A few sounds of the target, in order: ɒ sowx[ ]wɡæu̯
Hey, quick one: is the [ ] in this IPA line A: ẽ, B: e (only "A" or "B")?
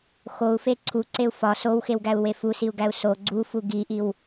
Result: B